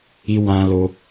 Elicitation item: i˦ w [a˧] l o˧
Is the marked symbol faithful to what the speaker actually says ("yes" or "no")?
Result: no